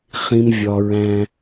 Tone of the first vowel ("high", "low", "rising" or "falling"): high